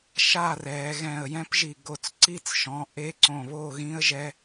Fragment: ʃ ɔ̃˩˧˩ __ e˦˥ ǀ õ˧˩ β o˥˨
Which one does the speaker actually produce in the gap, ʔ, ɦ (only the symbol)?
ʔ